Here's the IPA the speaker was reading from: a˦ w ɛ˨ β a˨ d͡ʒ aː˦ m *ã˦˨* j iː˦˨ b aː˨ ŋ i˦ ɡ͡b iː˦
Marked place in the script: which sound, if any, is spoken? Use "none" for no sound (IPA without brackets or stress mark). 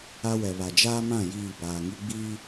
ã˦˨